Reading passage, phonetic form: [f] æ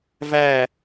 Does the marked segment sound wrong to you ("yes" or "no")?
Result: yes